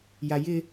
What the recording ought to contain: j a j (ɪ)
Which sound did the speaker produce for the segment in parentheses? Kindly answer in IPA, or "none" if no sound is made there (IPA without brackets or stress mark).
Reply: ɪ